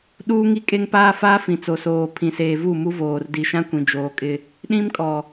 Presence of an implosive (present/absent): present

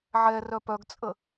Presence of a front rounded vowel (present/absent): present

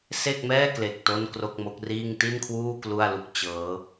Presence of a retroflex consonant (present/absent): absent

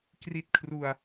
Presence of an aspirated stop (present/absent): present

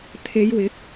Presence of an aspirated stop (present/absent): present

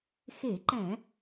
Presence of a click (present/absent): present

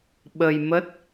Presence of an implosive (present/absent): present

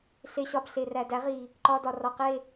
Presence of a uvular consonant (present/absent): present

